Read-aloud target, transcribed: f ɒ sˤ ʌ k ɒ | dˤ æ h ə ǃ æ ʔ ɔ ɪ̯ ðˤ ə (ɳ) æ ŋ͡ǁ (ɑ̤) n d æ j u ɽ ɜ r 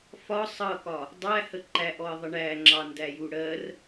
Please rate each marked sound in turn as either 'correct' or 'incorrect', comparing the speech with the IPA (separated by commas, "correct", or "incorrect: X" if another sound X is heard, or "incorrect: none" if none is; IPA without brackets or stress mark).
correct, incorrect: ɑ